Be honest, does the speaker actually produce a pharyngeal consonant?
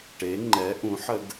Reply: yes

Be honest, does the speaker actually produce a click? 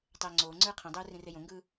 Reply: yes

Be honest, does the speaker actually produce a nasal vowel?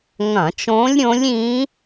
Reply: yes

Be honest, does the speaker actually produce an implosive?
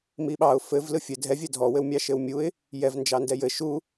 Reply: yes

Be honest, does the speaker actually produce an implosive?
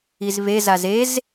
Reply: no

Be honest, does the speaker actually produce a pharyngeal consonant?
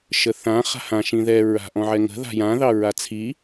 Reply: yes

